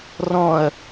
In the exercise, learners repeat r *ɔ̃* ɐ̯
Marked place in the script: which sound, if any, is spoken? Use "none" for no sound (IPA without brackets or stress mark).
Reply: ɔ̃